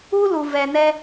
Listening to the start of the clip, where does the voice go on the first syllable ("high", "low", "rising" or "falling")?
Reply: high